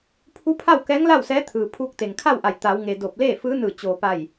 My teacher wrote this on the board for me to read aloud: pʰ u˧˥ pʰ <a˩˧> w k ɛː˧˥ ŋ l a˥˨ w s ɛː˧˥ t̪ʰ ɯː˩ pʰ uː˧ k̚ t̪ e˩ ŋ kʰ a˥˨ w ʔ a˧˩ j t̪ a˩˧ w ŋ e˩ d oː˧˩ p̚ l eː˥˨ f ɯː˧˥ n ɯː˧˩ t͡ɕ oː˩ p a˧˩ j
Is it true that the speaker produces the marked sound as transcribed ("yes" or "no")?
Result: no